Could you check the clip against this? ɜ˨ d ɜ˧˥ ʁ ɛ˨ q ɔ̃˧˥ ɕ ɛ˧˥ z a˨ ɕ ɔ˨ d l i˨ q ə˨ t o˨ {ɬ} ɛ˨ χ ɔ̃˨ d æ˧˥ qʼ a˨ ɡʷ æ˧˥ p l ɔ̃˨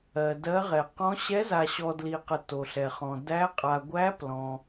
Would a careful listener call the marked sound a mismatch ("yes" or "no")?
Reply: no